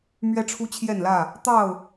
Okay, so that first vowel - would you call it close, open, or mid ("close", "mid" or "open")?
mid